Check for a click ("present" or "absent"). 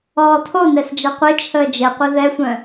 absent